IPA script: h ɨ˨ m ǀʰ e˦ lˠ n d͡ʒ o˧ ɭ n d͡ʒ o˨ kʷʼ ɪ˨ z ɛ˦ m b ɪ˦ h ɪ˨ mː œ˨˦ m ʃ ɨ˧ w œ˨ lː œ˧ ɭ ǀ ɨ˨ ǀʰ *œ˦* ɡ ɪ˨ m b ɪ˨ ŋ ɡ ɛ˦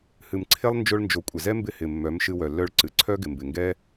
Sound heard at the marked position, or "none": œ˦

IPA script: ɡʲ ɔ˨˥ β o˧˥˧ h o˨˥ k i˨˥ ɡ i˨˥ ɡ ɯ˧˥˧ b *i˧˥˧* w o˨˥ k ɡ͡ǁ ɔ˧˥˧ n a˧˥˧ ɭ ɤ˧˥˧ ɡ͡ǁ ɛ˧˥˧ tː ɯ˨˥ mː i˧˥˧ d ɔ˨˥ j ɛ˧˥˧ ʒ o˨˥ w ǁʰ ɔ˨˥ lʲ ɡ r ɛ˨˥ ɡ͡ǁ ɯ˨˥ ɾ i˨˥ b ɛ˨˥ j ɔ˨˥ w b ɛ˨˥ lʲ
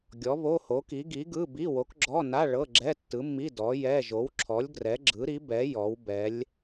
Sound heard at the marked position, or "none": i˧˥˧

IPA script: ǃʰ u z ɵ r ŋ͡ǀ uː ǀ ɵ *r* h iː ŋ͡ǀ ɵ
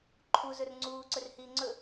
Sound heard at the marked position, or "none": r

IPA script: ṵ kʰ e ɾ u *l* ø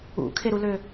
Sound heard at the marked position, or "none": l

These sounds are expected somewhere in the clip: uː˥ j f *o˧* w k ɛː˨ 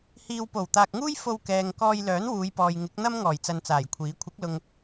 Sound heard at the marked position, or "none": o˧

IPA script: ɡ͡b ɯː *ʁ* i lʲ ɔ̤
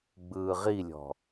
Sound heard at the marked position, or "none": ʁ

